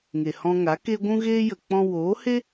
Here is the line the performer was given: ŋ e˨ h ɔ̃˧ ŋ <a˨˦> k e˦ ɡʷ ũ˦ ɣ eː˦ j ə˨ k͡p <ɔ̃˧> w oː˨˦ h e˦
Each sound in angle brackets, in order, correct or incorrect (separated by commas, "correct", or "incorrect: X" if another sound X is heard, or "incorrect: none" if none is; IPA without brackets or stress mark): correct, correct